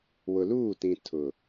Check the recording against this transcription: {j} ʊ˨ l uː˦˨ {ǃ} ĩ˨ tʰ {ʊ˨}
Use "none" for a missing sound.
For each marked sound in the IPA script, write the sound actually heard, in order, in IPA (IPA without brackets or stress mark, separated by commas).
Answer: w, t, ʊ˨